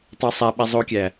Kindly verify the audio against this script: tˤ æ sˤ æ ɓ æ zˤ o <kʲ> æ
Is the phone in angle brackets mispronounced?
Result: no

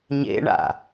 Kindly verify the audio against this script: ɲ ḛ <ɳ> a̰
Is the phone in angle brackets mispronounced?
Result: no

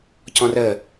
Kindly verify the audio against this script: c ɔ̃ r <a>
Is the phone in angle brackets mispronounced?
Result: yes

